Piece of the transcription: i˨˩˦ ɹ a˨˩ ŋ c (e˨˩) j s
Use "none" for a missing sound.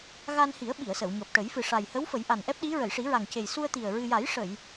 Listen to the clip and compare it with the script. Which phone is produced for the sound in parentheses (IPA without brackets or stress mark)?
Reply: e˨˩